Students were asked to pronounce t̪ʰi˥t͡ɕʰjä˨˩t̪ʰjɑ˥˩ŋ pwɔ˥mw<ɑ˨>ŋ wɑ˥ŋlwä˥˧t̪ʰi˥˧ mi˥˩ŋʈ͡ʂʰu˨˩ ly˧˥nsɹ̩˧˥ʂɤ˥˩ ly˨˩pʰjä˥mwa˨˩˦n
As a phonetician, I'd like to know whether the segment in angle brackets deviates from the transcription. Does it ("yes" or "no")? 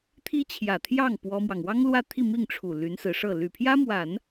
no